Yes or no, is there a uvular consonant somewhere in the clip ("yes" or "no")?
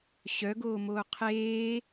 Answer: yes